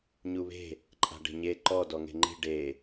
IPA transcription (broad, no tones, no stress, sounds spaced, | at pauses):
ɲ u β e̤ | ǃʼ a̤ ɖ e̤ ɲ e ǃ ɔ d ɔ ŋ e̤ ŋ͡ǃ i̤ ɖ e